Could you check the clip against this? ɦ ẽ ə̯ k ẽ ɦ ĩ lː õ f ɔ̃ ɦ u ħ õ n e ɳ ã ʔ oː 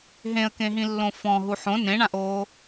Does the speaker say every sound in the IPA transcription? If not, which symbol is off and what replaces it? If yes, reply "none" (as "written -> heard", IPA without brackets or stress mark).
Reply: e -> ẽ